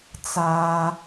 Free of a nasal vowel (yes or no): yes